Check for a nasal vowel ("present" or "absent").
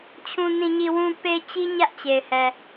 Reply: present